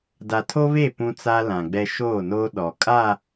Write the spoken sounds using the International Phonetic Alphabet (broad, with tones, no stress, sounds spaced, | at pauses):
d a˨ tʰ o˦ β e˦˨ p ũ˦ t͡s a˦ l ã˨ ɡ͡b ɛ˦ ʃ oː˦˨ n oː˦ ɗ ɔ˨ kʼ a˦˨